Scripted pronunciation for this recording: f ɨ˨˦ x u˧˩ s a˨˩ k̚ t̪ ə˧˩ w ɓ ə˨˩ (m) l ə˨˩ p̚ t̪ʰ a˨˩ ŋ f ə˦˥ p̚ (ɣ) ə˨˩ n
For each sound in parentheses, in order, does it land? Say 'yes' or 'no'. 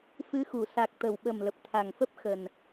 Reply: yes, no

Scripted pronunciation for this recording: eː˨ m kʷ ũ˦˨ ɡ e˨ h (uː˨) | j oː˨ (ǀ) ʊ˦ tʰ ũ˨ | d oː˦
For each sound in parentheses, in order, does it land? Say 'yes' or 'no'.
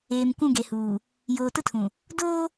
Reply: yes, no

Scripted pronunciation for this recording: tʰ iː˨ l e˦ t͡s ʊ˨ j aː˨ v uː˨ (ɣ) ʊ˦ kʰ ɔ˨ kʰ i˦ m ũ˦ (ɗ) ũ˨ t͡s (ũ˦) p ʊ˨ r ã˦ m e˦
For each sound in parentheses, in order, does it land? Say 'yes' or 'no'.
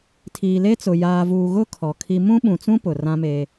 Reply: yes, no, yes

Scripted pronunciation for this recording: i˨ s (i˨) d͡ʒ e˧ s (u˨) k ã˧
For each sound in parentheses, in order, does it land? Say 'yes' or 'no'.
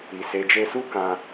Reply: no, no

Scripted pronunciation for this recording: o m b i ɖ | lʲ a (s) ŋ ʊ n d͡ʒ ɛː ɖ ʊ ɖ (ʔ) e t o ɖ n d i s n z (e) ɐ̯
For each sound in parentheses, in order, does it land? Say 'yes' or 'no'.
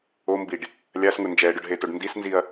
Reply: yes, no, no

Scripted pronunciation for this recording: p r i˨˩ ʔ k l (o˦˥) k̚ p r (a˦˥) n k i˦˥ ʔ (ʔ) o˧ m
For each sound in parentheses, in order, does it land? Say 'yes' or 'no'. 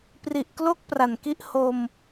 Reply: yes, no, no

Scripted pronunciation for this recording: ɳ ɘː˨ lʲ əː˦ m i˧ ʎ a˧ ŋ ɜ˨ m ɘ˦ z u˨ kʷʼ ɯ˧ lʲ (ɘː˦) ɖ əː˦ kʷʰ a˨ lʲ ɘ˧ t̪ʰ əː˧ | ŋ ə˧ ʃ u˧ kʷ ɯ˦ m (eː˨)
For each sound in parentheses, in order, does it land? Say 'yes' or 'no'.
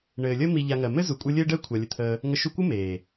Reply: yes, yes

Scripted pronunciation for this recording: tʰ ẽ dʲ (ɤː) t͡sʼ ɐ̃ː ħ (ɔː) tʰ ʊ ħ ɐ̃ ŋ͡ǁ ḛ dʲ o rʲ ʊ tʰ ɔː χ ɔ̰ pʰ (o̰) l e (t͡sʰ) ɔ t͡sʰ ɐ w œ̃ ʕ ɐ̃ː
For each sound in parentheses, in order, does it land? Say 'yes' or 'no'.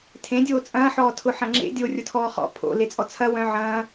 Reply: no, yes, yes, no

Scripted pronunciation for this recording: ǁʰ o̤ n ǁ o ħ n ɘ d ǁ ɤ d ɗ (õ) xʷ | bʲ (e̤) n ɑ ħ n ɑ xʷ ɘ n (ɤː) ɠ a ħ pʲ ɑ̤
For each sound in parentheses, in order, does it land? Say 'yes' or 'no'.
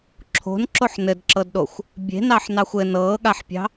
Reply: no, yes, yes

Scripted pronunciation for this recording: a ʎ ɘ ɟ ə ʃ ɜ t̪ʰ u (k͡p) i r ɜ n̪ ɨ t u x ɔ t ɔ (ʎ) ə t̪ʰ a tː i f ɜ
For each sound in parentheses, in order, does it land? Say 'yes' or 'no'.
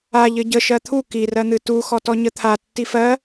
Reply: no, no

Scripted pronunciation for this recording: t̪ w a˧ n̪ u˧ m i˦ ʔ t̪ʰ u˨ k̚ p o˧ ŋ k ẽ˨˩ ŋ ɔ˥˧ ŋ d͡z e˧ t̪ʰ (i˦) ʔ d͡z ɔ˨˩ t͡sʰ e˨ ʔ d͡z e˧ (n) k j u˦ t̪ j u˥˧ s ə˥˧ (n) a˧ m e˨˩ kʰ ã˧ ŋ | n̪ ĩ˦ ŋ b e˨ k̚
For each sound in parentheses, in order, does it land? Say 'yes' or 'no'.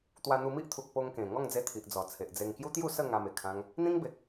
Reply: no, no, no

